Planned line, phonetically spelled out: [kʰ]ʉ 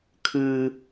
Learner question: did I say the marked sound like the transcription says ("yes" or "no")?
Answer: yes